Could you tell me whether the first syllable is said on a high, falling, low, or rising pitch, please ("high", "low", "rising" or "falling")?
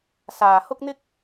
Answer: low